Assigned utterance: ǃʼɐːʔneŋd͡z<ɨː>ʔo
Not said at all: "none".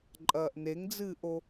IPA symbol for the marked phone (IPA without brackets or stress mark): ɨː